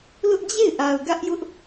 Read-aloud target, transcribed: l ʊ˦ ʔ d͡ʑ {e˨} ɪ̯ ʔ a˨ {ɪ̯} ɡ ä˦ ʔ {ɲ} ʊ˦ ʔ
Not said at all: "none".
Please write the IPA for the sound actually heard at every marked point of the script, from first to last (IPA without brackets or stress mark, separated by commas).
e˦˨, ʊ̯, j